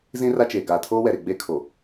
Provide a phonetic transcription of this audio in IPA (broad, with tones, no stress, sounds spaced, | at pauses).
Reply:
z ĩ˦ r a˦ t͡ʃ eː˨ ɡ aː˨ tʰ oː˦ w ɛ˨ ɾ e˨ ɡ͡b eː˦ kʰ o˨